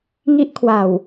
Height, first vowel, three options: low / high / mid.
high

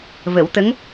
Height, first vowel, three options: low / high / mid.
mid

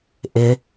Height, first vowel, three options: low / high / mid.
high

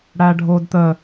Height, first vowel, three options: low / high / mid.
low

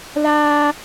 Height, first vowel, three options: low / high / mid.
low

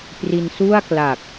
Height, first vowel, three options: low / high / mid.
high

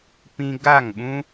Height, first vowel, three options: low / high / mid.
high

